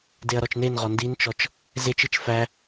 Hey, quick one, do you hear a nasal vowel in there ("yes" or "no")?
no